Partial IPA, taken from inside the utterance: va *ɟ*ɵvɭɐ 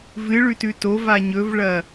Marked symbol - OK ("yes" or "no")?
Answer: no